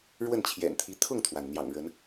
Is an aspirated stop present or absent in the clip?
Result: present